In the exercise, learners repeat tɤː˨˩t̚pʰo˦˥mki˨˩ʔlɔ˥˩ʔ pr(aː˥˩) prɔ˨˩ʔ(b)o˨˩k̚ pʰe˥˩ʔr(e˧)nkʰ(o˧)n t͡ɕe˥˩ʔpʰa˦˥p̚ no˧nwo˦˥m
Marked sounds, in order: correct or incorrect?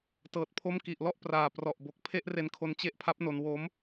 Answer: incorrect, correct, correct, correct

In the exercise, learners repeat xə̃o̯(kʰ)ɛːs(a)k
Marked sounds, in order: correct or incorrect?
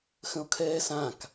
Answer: correct, incorrect

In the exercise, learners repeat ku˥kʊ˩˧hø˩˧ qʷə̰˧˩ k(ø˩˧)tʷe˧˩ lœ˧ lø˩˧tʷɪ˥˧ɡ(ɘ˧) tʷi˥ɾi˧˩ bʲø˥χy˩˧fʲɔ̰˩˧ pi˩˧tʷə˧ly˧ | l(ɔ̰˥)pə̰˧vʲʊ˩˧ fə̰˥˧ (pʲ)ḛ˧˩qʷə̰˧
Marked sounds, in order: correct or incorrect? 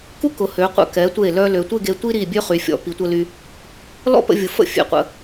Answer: incorrect, incorrect, correct, incorrect

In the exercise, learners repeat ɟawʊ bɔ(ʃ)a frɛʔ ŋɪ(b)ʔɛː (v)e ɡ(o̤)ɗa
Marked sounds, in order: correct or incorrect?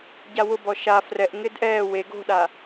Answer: correct, incorrect, incorrect, correct

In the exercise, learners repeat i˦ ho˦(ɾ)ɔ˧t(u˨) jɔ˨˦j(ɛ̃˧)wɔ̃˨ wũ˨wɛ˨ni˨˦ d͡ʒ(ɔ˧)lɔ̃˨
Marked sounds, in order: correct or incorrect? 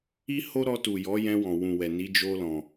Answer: correct, correct, correct, incorrect

